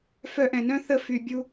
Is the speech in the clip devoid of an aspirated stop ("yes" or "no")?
yes